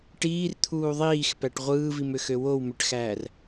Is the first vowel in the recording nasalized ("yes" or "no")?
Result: no